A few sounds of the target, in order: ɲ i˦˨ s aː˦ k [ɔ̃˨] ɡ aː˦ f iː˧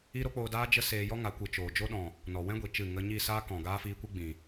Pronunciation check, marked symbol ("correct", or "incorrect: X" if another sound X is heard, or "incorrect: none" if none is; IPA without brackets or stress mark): correct